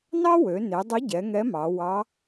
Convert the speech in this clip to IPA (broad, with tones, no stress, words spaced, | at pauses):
nɑ˥wø˩˧ ne˩˧dˤʊ˧˥ɟɛ˩˧ ŋɛ˧˥mɑ˩˧ wɑ˧˥